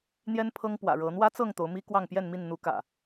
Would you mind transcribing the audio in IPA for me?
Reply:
n̪ j ɛ˦ n pʰ ɤ˦ ŋ p w ä̰˨˩ ɻ ɤ˨˦ n̪ w ä˦ t͡s ɤ˥˨ ŋ t̪ o˨˦ ʊ̯ m i˦ k w ɑ˥˨ ŋ p j ɛ˥˨ n m i˥˨ n n̪ u˨˦ k ä̰˨˩

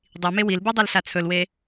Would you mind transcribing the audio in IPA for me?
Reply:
dˤ i m e w i l b ɯ dˤ a l ɬ a t͡sʰ ɵ l w e

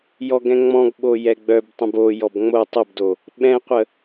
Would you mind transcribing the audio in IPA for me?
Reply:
j ɔ ɡ ɛ̃ ŋ͡m ɔ̃ ɡ ɓ o j ɛ ɡ͡b œ b tˤ ə̃ b o j ɔ b ŋ͡m o tˤ ə b d o | ɓ ɛ̃ qʷ ə

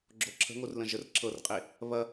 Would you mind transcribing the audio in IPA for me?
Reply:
ɡ͡ǁ o ǁʰ ə̤ ŋ o r l ə̃ ʒ ə r ǁʰ ɤ r qʼ e | β ɐ

